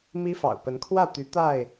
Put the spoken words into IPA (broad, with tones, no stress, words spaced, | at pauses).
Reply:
mi˦fɑ̰˨˩ʊ̯ pə˨˦nkʰwä˥˨t̪y˨˦ t̪a˥˨ɪ̯